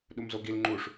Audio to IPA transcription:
ɗ u m z o ɡ i l ŋ͡ǃ u ʂ

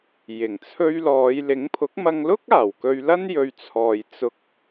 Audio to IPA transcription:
j ɪ˨˩ ŋ t͡sʰ ɵ˧ ɥ l ɔː˨˧ j l ɪ˨˥ ŋ pʰ ʊ˨˥ k̚ m ɐ˧ ŋ l ʊ˥ k̚ aː˨˩ w k ɵ˧ ɥ l ɐ˥ n j ɵ˨ ɥ t͡sʰ ɔː˨ j t͡s ʊ˧ k̚

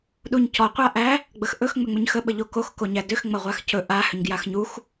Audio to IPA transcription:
ɗ u ɲ c ɔ qʷ a ʔ æ | ɡ͡b ə x ʔ ɵ x ŋ͡m ʏ ŋ͡m ʏ ɲ x ə ɓ ə ʎ o k o x k o ɲ æ d ʏ x ŋ͡m ɐ ʁʷ a x c ɵ ʔ a h ʏ ɲ ɡ j a x ɲ u x

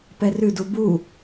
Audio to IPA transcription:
p ɛ r ʉ d u b u

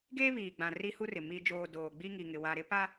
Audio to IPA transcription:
ɡ eː˦ β iː˨ ɡ͡b ã˨ r i˦ h u˦ r ɪ˨ m i˨ d͡ʒ oː˨ d oː˨ ɡ͡b i˦ ŋ i˨ ŋ ɪ˨ w a˨ ɾ ɪ˦ p a˦

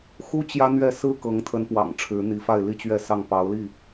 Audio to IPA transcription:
x u˦ t͡ɕ j ä˦ n̪ ɥ ɛ˥˨ s ɹ̩˦ k ɤ˨˦ ŋ t̪ʰ ə˨˦ n p w ɑ̰˨˩ ŋ ʈ͡ʂʰ ɻ̩˨˦ n̪ i˨˦ f a˥˨ ɪ̯ l i˥˨ t͡ɕ ɥ ɛ˥˨ s ɑ˥˨ ŋ p ɑ˨˦ ʊ̯ l i˥˨

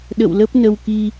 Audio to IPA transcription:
ɗ ə̰˧˨ w l ə˦˥ p̚ n ə˧ w k i˧

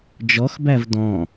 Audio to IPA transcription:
d͡ʒ ɔ x b æ v d ɔ̃

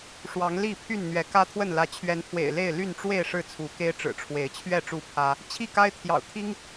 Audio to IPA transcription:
ʂ w ɑ˨˦ ŋ l i˥˨ pʰ y˥˨ n n̪ ɥ ɛ˨˦ k ä˦ t̪ʰ w ə˥˨ n l ä˨˦ t͡ɕʰ ɥ ɛ˨˦ n pʰ w ḛ˨˩ ɪ̯ l e˥˨ ɪ̯ l y˥˨ n ʈ͡ʂ w e˥˨ ɪ̯ ʂ ɻ̩˥˨ t͡sʰ u˨˦ k e˦ ɪ̯ ʈ͡ʂ ɻ̩˨˩ ʈ͡ʂʰ w e˨˦ ɪ̯ t͡ɕʰ ɥ ɛ˥˨ ʈ͡ʂ u˥˨ pʰ ä˦ | t͡ɕʰ i˥˨ k a˦ ɪ̯ t̪ʰ j ɑ̰˨˩ ʊ̯ t̪ʰ i˦ ŋ

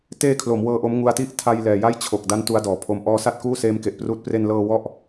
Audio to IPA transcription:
t eː˧ kʰ l o˩˦ m w ɤː˧ ʔ o˦˥ m ŋ u˧ a̯ t i˥˩ ʔ tʰ a˧ j l ɛː˨˩ j a˥˩ j t͡ɕʰ o˨˩ k̚ d a˦˥ n t u˦˥ a̯ d ɔː˩˦ pʰ o˦˥ m ʔ ɔː˦˥ s a˥˩ t̚ k uː˥˩ s eː˦˥ m k e˨˩ ʔ p r uː˦˥ t̚ p r e˧ n l ɤː˧ w ɔ˥˩ ʔ

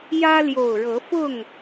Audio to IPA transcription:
j ä˦ l j o˨˩ ʊ̯ ɻ ɤ˨˦ f ʊ˥˨ ŋ

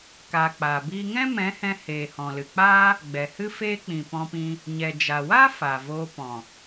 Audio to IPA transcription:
k aː˨ k͡p aː˨ b iː˦ ŋ ɛ̃˦ m ɛ̃˨˦ h ɛ̃˧ h eː˨ h ɔ̃˨ l ɨ˨ k͡p aː˦ | ɡ͡b ɛ˨ h ɨ˦ f eː˦ k͡p ĩ˨ p ɔ̃˧ p ĩ˧ | ɲ ɛ˨ d͡ʒ a˨ w aː˦ f a˨ v oː˧ p ɔ̃˨

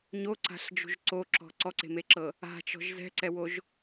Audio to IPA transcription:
ɲ o ǀ a̤ ɬ d͡ʒ ṳ ʒ ǀ o ǁ ɔ̤ ǀ ɔ ǀ e̤ m e ǁ ɤ | a̤ t͡ʃ ɔ̤ ʒ z ɛ̤ ǀ ɛ w o ʒ

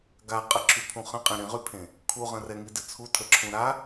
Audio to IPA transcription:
ɡ a qʼ ə ǁʰ y pʰ ũ χ ə̃ qʼ ẽ ɾ ĩ ʁ y pʰ ẽ | kʰ u ʁ ə̃ r ɛ ŋ i d ɨ t͡sʰ u tʰ ə ǁʰ ũ ɾ a

